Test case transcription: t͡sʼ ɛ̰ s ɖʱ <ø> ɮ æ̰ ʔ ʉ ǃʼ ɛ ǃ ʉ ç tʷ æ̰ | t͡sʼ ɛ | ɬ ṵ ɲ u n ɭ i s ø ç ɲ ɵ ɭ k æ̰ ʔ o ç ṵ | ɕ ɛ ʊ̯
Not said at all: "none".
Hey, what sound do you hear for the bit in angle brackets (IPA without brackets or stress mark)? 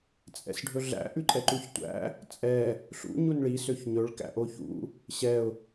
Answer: ɵ